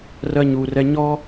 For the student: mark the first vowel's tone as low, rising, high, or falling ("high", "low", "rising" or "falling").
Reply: high